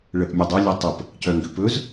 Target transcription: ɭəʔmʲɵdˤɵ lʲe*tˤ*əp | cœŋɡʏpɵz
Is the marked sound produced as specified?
yes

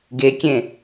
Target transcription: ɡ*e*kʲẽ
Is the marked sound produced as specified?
yes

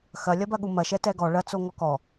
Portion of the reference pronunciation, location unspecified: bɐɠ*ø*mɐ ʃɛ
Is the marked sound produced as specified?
no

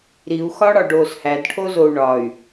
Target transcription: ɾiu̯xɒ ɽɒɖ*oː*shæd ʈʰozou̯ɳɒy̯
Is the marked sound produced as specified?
yes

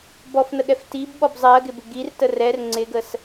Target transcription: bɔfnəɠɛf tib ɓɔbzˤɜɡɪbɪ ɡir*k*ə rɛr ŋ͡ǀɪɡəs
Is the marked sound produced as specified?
no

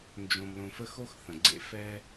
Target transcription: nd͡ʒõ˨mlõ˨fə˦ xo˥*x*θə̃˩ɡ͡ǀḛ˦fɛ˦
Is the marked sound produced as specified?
yes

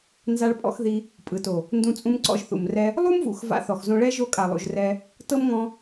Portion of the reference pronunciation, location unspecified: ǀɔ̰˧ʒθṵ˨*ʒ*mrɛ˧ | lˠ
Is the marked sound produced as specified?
no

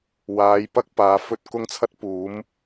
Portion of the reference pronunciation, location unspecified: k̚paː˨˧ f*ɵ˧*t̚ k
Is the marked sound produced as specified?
no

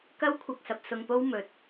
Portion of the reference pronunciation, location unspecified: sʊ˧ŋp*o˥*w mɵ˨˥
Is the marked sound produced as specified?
yes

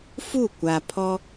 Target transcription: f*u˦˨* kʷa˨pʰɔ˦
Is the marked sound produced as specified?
yes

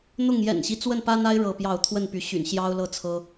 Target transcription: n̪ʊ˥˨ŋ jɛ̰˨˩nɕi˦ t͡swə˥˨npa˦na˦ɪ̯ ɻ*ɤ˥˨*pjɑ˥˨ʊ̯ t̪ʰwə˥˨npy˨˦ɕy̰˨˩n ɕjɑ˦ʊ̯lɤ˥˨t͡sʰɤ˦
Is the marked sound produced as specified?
yes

